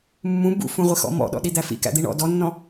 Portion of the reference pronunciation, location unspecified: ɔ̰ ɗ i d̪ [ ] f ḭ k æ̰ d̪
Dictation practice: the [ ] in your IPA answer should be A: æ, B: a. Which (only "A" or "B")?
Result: A